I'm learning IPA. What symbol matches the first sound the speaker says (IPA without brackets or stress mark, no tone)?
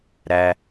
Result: ɾ